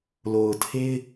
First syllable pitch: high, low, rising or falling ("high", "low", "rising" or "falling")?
low